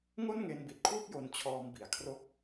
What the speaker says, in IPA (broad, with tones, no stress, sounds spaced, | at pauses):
ŋ o˥˩ n ŋ e˧ n b i˨˩ t̚ kʰ w u˥˩ k̚ j o˧ n t͡ɕʰ ɔː˧ m b i˩˦ a̯ kʰ r o˦˥ k̚